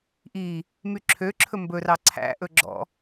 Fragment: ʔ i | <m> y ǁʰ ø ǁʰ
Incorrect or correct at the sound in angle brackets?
correct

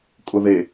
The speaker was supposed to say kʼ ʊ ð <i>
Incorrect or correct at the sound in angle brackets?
incorrect: e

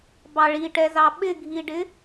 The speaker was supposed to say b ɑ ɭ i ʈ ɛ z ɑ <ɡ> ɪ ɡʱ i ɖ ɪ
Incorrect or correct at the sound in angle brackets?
incorrect: ɓ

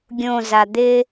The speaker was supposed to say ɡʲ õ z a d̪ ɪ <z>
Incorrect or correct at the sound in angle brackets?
incorrect: none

